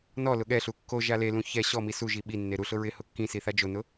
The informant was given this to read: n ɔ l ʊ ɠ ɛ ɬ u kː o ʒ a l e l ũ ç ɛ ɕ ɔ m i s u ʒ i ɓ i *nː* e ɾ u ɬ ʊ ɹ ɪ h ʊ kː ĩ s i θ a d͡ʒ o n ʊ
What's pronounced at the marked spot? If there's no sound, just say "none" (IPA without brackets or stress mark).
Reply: nː